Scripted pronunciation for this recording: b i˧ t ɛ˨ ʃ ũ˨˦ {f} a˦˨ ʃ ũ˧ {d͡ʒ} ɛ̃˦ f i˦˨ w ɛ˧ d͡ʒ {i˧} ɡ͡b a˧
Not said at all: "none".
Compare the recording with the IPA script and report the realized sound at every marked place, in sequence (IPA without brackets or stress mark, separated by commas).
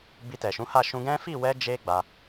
h, ɡ, e˧